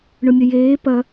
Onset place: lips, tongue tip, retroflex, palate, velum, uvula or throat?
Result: retroflex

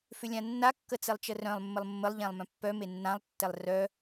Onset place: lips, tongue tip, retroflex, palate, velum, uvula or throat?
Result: lips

